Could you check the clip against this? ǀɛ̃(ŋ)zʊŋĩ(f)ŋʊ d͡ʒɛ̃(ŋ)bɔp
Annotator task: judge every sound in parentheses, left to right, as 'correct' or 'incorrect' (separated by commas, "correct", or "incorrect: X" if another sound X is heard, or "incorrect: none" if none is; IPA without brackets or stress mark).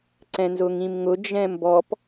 incorrect: n, incorrect: m, incorrect: m